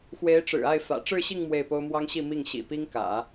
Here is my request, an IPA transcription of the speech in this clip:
x w e˧˥ ɪ̯ ʈ͡ʂ ɻ̩˨˩ a˥˩ ɪ̯ f ä̰˨˩ ʈ͡ʂ ɻ̩˥˧ ɕ i˥˧ ŋ m w e˥˩ ɪ̯ p o˥ ʊ̯ m w ɑ˥ ŋ ɕ i˥˧ m i˥˩ ŋ ɕ ḭ˨˩ p i˥ ŋ k ä̰˨˩˦

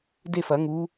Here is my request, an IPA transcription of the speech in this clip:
d e˥˨ f ɐ˨˩˦ ŋ u˨˦

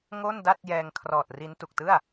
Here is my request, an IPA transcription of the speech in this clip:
ŋ o˥˩ n d a˥˩ t̚ j ɛː˧ ŋ kʰ r ɔː˨˩ t̚ r i˦˥ n t u˨˩ k̚ t ɯ˥˩ a̯

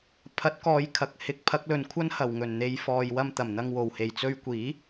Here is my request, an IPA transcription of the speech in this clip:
pʰ ɐ˨˥ t̚ k ɔː˨˧ j kʰ ɐ˨ k̚ h ɪ˨˥ k̚ pʰ ɐ˨˥ k̚ l ɵ˨ n kʷʰ ɐ˥ n h ɐ˨˩ w ŋ ɵ˨˩ n n̪ e˨˧ j f ɔː˨ j w ɐ˧ m t̪ ɐ˨˩ m n̪ ɐ˧ ŋ w o˨˩ w h e˨˩ j t͡s ɵ˧ ɥ kʷ iː˨˥

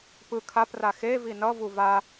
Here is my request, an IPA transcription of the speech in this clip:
p ɯ kʰ a p r a x e v i n ʌ v u v a

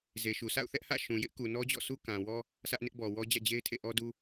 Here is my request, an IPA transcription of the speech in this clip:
z e˨ ʃ u˨ s a̰˦˨ ʊ̯ θ ɛ˦ ʔ h ä̰˦˨ ʃ ũ˨ j ɪ˦ ʔ k u˨ n ɔ˦ d͡ʑ ɔ̰˦˨ sʰ u˦ k ã˨ w ɔ˦ | sʰ ä˦ ʔ n ɪ˦ ʔ b ɔ˨ w ɔ˦ d͡ʑ ä̰˦˨ d͡ʑ e˦ ɪ̯ tʰ ḛ˦˨ ʔ ɔ˦ d u˦

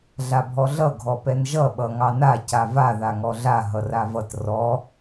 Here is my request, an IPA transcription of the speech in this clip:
ɮ a bʱ ɔ ɮ ʌ ɡʱ ɔ p ɛ n ʒ ʌ ɓ ʌ ŋ ɑ n a c a v a ð a ŋ ɔ ɮ a ɦ ʌ r a v ʌ t r ɔ

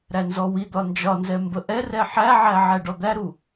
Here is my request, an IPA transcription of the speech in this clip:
ɾ æ n z ɔ w i d̪ ɒ n d͡ʒ ɒ n z ɛ m b ə ʔ ɛ r ɛ ħ æ ʕ æ ʕ æ ɖ ɔ d̪ æ ɾ u

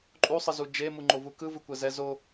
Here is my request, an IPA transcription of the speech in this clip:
ǃʼ u sˤ ɯ z u d͡ʒ e m u ŋ͡ǃ o v u k ɯ v ɯ kʷ ɛ z ɛ z o

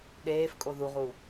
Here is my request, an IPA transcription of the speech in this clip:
ɗ eː f kʼ o ð u ʁ u

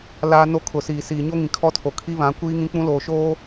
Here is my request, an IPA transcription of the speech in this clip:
l aː˦ n o˦ kʰ ʊ˨ s iː˨ s iː˨ ɲ o˦ ŋ ĩ˨ kʰ ɔ˦ tʰ o˨ kʰ i˦ β ã˨˦ kʷ iː˦ ŋ ĩ˦ k͡p ũ˦ l oː˨ ʃ oː˦

